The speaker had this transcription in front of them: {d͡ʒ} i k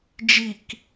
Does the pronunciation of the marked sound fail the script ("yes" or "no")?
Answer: no